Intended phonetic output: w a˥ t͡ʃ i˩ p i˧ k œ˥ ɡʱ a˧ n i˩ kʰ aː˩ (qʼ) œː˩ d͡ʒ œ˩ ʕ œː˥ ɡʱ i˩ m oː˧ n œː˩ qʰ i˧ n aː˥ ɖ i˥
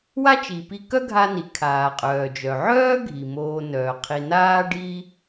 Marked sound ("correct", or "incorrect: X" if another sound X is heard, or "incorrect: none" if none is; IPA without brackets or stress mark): correct